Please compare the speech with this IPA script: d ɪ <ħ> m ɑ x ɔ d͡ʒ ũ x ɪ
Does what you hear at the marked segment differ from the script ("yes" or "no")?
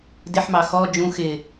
no